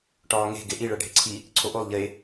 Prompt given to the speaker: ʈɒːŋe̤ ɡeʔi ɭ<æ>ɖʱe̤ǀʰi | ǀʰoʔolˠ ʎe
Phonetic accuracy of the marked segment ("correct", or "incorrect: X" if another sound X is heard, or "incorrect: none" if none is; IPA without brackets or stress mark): correct